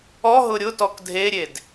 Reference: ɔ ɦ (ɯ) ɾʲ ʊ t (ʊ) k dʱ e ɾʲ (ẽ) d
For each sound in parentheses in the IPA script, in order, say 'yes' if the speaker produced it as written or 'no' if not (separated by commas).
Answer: no, no, no